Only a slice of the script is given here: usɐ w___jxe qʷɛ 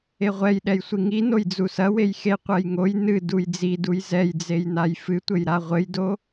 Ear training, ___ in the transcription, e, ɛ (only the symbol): e